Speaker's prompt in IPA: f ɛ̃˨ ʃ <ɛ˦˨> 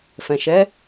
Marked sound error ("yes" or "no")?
yes